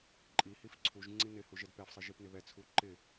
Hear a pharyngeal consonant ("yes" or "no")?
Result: no